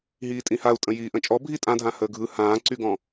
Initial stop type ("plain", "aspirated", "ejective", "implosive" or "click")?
ejective